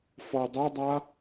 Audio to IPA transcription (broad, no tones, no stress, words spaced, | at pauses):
fɔə̯dˤodˤa